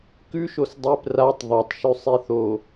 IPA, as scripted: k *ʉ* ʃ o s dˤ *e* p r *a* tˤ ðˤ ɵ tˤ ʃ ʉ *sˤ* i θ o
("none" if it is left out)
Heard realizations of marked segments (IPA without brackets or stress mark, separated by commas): ʉ, e, a, sˤ